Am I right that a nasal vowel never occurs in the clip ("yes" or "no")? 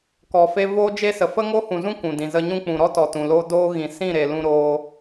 no